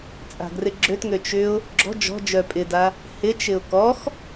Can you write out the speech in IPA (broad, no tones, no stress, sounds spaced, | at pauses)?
t͡sʼ a̤ ɡ r ɪ ɡ͡ǁ ø t ŋ ø t͡ʃ ʏ ʊ̯ | ɡ͡ǁ ɔ̤ d͡ʒ ɔ̤ d͡ʒ œ pʼ ɪ d a | h ɪ t͡ʃ ɪ ʊ̯ k ɔ x